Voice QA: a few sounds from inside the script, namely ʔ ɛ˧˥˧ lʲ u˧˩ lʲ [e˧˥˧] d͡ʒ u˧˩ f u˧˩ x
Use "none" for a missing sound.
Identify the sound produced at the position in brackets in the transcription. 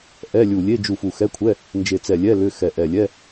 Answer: e˧˥˧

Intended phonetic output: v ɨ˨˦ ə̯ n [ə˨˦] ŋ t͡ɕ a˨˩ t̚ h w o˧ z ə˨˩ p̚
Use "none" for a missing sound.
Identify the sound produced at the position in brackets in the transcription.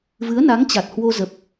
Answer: a˨˦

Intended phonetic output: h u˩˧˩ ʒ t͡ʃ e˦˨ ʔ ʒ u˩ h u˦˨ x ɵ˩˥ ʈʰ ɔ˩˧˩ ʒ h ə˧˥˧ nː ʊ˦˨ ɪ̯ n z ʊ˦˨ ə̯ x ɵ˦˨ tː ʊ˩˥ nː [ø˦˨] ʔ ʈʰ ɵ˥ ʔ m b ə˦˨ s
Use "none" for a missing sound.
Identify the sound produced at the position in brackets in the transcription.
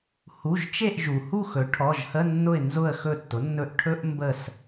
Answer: ɵ˦˨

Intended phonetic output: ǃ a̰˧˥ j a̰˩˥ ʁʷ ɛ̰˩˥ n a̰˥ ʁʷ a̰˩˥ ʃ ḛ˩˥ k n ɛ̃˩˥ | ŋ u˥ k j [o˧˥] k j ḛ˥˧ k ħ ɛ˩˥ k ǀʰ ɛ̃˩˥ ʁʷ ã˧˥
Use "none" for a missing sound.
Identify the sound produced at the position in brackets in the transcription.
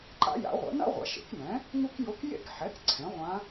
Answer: o˧˥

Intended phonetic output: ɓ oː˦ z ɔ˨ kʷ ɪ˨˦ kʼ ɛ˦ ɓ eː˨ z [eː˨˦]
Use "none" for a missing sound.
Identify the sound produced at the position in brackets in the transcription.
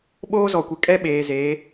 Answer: eː˨˦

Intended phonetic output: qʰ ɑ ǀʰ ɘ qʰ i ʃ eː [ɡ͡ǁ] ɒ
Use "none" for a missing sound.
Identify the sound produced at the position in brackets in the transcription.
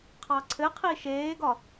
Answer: ɡ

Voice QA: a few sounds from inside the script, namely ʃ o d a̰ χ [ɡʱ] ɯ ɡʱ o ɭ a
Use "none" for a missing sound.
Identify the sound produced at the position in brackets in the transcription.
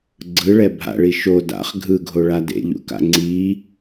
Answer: ɡʱ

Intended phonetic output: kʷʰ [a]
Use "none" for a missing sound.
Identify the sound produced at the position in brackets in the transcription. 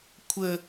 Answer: ə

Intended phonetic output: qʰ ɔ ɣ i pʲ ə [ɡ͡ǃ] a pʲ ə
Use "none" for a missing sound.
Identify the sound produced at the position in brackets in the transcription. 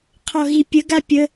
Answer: ɡ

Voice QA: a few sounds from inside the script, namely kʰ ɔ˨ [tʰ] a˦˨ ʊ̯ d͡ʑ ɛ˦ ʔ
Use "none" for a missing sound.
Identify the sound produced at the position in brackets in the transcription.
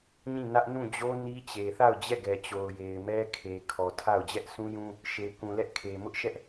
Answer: tʰ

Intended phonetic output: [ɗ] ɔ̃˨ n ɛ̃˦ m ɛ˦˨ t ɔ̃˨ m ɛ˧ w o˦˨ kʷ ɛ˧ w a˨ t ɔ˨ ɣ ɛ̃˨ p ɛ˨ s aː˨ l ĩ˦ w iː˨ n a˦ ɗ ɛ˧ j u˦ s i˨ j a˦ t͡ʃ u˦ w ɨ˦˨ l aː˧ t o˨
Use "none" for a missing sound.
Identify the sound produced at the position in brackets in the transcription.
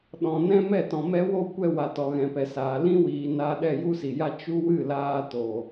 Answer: ɗ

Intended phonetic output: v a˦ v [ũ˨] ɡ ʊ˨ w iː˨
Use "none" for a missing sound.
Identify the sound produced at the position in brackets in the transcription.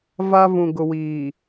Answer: ũ˨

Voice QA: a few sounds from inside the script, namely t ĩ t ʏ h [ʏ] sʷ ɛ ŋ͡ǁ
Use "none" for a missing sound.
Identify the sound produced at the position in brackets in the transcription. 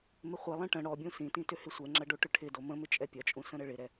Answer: ɪ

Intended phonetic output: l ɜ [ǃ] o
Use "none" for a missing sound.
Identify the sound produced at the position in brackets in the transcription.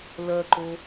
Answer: ǃ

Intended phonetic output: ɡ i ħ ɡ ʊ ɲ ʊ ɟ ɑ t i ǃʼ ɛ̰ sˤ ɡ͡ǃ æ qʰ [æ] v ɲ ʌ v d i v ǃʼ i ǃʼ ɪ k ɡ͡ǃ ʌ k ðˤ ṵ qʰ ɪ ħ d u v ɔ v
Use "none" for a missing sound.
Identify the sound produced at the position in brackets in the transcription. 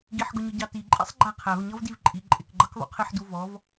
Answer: æ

